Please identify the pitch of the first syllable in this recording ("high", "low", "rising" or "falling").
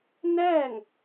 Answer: falling